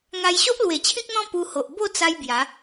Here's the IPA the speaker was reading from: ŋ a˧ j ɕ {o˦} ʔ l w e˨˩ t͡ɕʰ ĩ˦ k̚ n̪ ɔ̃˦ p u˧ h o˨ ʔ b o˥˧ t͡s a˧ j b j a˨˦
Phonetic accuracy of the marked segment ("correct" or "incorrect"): correct